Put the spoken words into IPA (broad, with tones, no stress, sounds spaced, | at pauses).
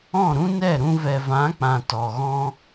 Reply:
ɔ̃˦˨ ɾ ũ˦ n ɛ˦˨ ɾ ũ˧ v ɛ˨ v ã˨˦ k͡p ã˨ t ɔ˨ ɣ ɔ̃˦